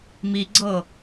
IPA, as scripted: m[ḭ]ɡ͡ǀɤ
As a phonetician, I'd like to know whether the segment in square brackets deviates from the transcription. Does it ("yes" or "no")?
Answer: yes